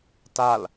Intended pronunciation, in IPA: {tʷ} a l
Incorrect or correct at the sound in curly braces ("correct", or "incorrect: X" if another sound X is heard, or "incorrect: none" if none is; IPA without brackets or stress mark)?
incorrect: t